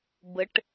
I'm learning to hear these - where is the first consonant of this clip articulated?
lips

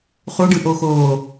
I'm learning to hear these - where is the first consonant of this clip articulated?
uvula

